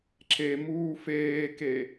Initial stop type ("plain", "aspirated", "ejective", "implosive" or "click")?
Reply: click